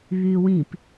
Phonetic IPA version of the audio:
β yː w ĩ p

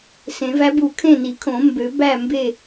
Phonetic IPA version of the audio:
s ẽ˨˩˦ v æ˧˥ b u˨˩˦ kʰ ẽ˥˨ n i˨˩˦ kʰ õ˨˩˦ m b ø˨˩˦ b æ˥˨ m b e˥˨

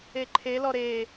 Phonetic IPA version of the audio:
e ǃʰ e l ɔ ɾ e

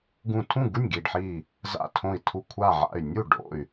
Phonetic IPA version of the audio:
ɡ ũ˧˩ tʰ ũ˥˩ ɡ u˥˩ nʲ ɡ i˧˩ ɖ ħ i˧˩ | z a̰˧˩ tʰ õ˧˩ i̯ tʰ u˧˩ kʷʰ a˧˩ ʕ a̰˧˩ y̯ nʲ u˥˩ ɖ o̰˥˩ y̯

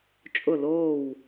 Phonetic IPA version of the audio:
t͡ʃʼ ʊ˧˩ l oː˧˩ w

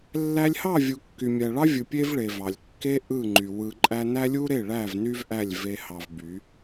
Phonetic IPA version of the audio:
lː æ˧ lʲ h ɑ˦˨ vʲ u˨ kː y˨ mʲ æ˨ ɭ ɑ˦ vʲ ɯ˨ pʲ e˦ v ɭ e˨ v ɑ˨ lʲ kː e˦ ʔ ɯ˦˨ ŋ͡ǃ y˨ w ɯ˧ ǃʼ æ˦ n æ˦ lʲ u˦ ɾ e˦˨ ɭ æ˦˨ v n y˦ v ʔ æ˦˨ lʲ v e˧ h ɑ˧ v b y˨˦

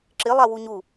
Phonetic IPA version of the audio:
ǁ ɪ lˠ a w u ɲ u

